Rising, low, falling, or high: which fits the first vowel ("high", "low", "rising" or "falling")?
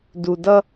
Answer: low